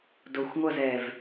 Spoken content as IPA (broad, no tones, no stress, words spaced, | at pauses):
doxʷŋʷʌz ɛv